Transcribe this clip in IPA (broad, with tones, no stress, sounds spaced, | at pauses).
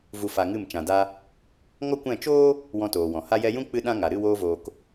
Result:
v u˧ f a˧ ŋ ɨ˦˨ m t͡ʃ ã˨ d a˧ | ŋ ɔ˦ kʷ ɛ̃˦˨ t͡ʃ oː˦ | w ɔ̃˧ t oː˨ w ɔ̃˨ h a˧ j ɛ˧ j ũ˦ k͡p ɨ˧ ɗ ã˦ ŋ a˨ ɾ ɨ˦˨ w oː˧ v oː˨ k